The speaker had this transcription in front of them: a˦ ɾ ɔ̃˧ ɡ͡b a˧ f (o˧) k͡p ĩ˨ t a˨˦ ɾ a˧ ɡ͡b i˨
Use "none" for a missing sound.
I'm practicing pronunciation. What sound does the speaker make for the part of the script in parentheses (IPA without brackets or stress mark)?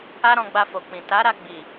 o˨